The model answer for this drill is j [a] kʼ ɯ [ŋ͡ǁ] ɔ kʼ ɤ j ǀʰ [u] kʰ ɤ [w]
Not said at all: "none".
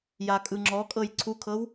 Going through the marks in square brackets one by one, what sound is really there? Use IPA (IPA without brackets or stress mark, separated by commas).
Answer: a, ŋ͡ǁ, u, w